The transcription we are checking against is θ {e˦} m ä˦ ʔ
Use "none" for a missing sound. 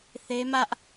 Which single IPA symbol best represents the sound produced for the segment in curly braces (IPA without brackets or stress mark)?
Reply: e˦